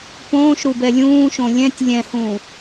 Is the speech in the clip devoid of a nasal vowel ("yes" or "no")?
no